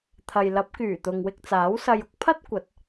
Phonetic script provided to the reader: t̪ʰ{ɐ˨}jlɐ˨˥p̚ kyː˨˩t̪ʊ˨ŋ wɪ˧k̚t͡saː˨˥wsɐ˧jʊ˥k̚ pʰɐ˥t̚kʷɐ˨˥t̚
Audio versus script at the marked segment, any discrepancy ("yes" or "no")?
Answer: no